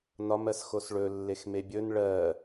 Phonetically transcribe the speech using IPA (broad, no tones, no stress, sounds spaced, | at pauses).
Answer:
n ɒ m ɜ s x o s ɭ ɵ lː e x m e bʲ ɵ n ɭ ɜ